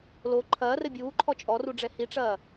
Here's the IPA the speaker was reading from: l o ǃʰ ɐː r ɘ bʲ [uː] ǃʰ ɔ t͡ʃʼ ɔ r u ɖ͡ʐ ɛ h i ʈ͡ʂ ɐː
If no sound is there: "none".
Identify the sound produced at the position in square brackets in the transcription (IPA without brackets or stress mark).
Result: uː